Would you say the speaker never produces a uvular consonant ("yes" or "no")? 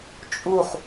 no